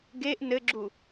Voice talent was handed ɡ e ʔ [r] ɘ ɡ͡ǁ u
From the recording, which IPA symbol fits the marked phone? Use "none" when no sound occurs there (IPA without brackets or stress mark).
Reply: n